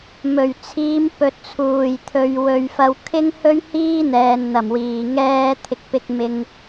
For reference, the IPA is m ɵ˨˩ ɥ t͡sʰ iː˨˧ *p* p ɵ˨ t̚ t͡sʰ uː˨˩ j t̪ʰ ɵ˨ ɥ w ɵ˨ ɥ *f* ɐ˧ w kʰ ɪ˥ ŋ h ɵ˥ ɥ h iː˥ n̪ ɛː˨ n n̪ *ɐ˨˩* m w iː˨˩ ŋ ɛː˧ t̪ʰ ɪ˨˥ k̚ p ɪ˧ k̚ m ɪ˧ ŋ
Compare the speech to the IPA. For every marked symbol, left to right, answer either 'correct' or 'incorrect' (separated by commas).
incorrect, correct, correct